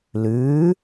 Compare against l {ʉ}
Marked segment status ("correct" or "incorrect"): incorrect